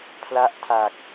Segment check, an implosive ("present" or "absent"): absent